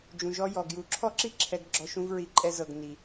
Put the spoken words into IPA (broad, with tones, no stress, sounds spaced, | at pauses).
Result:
d͡ʒ ũ˨ ʒ ɔ˧ j ɔ˨ ɡ j u˨˦ ǁʰ ɔ˦ ǁ i˦ ǁʰ ɛ˧ ɡ ɡ͡ǁ ɔ˧ ʃ ũ˧ v ɹ i˨˦ ǃʼ ɛ˧ z ɤ˨ ɡ n i˨